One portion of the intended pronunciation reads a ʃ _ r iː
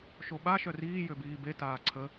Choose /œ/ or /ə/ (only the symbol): œ